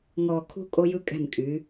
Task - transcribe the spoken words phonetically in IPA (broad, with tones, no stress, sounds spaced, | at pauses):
ŋ ɔː˨ kʰ ṳ˦ kʼ o˦ j ɯ˦ kʼ ɛ̤˦˨ m kʼ y˨˦